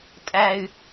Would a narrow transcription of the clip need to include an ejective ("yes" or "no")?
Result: yes